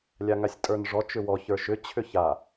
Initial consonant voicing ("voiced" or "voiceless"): voiced